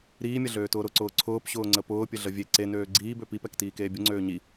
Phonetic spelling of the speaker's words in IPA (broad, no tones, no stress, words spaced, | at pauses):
ɾiːmʲɐɮøːtʊː ɾʊǀʊː ǀʰʊːpɕʊːŋ͡ǀə pʊːpʲəɮə vʲe ǀenøː ɡ͡ǀiːbø pipɛktiːkeː bʲʊŋ͡ǀøː ɲi